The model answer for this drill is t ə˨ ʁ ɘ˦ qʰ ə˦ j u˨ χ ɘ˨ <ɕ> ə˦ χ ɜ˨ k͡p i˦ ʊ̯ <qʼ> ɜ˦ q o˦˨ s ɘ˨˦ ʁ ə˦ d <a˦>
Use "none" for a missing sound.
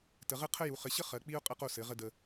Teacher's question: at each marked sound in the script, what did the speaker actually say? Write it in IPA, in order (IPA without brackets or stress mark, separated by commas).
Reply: ɕ, qʼ, ə˦